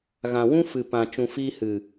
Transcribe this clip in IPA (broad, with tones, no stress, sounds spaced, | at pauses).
ɣ ã˨ w ũ˦ f ɨ˨ p ã˨ t͡ʃ ũ˨ f iː˧ h ɨ˨